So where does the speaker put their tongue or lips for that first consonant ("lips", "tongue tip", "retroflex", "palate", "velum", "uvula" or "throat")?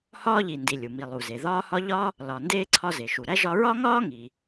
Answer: throat